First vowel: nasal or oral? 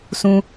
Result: nasal